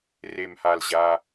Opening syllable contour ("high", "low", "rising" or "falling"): low